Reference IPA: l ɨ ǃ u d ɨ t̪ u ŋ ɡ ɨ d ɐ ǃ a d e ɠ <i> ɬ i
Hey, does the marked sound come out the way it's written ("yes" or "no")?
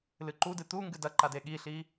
yes